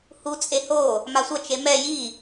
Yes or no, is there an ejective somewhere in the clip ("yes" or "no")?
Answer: yes